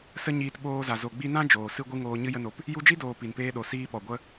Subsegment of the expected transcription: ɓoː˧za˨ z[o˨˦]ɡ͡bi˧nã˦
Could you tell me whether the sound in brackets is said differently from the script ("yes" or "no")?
yes